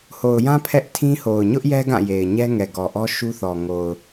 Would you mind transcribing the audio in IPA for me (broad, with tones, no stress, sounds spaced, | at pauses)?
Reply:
h o˨ ʊ̯ j ã˦ pʰ ɛ˦ ʔ tʰ ĩ˦ h o˨ ʊ̯ ɲ ʊ˦ ʔ j ɛ˦ ɡ ã˦˨ j e˨ ɪ̯ ɲ ɛ˦ ŋ ɛ˨ ɡ ɔ˨ ʔ ɔ˦ ʃ u˦ θ ɔ˨ ŋ o˨ ʊ̯